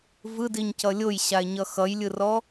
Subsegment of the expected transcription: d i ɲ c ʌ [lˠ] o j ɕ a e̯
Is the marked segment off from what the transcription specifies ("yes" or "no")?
yes